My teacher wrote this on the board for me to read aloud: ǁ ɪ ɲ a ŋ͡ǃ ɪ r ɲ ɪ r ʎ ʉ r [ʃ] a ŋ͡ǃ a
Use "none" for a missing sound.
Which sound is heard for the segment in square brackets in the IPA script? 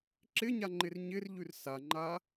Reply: s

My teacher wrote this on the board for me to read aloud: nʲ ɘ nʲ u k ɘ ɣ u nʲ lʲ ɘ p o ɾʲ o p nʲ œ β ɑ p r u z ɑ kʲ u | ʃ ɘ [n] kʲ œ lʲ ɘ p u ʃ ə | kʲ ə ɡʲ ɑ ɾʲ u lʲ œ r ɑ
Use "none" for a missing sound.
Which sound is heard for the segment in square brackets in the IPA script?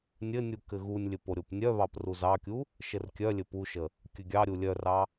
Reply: r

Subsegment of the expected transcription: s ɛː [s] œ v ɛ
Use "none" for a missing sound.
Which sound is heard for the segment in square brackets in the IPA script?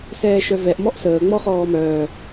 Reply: ʃ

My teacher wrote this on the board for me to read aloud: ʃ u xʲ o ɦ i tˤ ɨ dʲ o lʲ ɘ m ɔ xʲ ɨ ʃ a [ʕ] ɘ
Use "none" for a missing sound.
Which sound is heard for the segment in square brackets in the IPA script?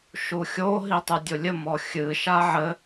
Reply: ʕ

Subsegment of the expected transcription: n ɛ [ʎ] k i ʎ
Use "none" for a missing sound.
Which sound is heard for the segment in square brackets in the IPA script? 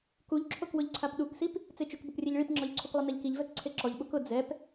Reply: ʎ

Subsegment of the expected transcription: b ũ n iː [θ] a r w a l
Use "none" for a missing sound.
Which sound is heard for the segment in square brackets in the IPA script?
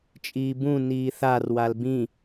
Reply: θ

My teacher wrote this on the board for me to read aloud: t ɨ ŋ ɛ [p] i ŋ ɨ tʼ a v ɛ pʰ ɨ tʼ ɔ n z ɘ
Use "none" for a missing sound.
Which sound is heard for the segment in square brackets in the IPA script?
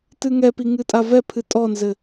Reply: p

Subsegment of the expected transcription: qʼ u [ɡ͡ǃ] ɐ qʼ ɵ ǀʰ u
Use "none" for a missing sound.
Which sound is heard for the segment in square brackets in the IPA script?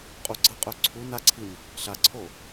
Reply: ɡ͡ǀ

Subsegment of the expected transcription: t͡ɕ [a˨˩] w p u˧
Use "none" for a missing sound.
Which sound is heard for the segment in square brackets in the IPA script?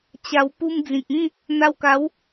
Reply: a˧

